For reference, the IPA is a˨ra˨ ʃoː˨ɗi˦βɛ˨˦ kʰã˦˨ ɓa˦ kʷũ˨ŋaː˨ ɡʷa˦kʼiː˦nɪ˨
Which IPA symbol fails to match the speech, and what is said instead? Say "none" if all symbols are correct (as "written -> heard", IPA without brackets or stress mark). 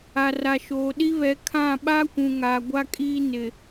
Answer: none